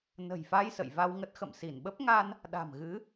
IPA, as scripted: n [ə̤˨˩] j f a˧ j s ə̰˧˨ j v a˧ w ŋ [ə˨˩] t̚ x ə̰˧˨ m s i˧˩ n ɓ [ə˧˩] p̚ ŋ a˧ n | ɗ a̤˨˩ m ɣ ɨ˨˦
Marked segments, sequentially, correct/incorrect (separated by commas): correct, incorrect, incorrect